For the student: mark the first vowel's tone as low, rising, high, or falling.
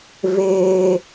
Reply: high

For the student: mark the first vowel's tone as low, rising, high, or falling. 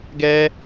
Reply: high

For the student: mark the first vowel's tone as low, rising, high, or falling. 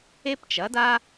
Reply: high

